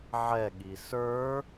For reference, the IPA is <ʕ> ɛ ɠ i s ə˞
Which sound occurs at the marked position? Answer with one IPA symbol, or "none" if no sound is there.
ʕ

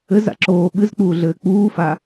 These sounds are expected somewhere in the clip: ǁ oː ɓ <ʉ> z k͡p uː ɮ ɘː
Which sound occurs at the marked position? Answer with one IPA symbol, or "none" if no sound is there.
ɨ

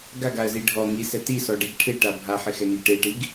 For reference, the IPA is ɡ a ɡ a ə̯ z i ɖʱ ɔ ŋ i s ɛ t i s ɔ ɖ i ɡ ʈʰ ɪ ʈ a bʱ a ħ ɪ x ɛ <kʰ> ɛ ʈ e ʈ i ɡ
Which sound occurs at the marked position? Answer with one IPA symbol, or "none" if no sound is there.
ŋ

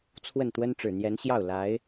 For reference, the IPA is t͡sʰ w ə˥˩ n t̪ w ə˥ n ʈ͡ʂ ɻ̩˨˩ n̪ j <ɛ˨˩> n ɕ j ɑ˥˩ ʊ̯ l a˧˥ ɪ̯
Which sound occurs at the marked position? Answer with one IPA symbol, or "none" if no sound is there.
ɛ˧˥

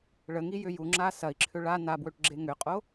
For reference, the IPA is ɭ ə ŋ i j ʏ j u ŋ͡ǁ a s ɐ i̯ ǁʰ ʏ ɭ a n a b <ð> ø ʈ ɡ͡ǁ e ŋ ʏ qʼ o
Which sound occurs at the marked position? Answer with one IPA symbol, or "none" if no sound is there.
w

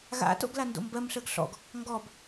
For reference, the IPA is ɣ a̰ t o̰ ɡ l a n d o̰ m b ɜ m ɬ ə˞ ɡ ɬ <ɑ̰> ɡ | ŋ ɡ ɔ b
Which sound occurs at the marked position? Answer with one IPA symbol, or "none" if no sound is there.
ɔ̰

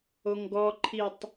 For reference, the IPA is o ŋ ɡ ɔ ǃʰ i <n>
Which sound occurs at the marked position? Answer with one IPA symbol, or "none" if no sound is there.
tˤ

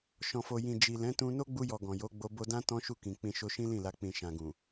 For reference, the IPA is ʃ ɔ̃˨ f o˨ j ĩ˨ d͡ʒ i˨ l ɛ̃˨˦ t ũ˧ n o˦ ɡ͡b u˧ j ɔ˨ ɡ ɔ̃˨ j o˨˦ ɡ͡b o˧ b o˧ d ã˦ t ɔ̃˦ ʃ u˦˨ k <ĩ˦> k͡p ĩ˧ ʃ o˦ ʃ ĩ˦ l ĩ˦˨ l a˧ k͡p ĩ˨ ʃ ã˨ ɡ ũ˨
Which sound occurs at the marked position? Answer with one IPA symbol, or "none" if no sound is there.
ĩ˨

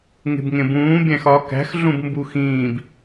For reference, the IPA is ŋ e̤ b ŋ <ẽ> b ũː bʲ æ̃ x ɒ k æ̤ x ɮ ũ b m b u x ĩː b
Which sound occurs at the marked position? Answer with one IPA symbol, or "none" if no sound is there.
ẽ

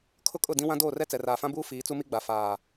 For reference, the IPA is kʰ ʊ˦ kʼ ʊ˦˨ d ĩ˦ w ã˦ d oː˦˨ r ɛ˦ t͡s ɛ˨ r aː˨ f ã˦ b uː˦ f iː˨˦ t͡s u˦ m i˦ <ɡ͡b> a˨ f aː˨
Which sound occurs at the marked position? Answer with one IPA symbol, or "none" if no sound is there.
ɡ͡b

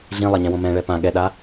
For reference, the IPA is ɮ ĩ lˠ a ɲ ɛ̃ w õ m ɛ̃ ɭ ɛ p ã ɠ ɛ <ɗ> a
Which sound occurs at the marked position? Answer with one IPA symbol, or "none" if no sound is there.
ɗ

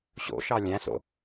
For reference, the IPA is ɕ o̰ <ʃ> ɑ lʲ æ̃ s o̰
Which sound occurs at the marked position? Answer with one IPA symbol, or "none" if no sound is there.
ʃ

